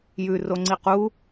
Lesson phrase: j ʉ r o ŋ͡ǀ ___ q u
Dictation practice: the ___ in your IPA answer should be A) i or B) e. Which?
A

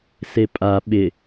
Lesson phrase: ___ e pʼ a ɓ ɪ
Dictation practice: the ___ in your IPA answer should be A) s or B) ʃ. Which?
A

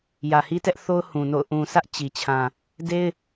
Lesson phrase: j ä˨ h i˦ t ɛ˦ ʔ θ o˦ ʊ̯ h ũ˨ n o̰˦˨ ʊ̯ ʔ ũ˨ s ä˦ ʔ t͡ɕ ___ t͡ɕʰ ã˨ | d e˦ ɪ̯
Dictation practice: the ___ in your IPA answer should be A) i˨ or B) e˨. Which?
A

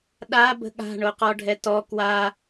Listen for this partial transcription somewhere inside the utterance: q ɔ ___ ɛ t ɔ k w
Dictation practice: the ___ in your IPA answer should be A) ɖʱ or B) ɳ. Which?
A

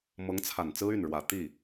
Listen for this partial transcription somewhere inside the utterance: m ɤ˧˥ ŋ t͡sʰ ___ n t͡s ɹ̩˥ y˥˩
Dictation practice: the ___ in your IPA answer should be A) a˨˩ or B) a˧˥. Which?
A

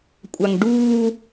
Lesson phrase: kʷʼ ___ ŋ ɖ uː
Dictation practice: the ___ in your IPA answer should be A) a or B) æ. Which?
A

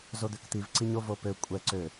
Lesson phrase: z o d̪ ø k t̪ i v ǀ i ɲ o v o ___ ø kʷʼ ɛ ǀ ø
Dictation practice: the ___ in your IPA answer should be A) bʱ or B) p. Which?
B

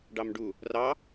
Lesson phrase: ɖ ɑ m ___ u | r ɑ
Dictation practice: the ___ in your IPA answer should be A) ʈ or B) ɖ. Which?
B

